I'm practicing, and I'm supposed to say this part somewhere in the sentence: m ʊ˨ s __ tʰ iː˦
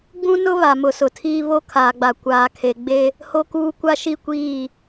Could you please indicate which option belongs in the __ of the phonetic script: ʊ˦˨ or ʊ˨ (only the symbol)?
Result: ʊ˨